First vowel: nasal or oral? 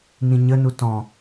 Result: nasal